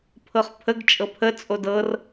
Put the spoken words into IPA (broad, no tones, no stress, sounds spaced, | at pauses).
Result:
pʰ ɤ χ pʰ ə ɡ t͡ʃʼ ɤ pʰ ə t͡sʼ o d ɤ r